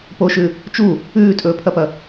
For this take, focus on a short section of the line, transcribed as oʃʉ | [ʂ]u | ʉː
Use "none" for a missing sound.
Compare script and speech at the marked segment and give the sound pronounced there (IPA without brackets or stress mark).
t͡ʃ